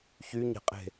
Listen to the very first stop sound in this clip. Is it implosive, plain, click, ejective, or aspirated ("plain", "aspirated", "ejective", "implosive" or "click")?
ejective